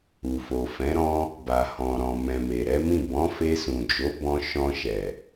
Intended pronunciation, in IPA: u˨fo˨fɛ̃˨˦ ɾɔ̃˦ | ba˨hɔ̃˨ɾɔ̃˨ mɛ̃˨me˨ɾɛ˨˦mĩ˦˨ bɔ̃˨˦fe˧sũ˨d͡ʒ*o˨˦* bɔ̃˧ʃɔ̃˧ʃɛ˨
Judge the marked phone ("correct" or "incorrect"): correct